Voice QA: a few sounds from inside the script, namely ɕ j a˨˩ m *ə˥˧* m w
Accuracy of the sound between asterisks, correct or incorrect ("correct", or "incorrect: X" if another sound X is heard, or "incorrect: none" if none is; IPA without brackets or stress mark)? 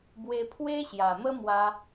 incorrect: ə˦